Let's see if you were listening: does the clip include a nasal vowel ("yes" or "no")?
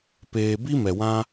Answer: yes